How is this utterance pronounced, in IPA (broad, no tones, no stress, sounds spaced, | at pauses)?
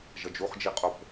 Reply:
ʒ ʌ d͡ʒ u χ d͡ʒ i qʼ o p